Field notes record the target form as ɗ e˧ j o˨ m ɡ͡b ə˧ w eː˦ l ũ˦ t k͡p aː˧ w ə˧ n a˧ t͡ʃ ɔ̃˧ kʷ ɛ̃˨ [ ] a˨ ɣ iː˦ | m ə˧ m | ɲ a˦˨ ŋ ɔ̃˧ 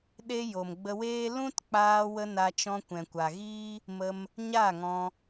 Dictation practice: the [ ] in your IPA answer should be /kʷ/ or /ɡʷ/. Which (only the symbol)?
kʷ